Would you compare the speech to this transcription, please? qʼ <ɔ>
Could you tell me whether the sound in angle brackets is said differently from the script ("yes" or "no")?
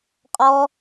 no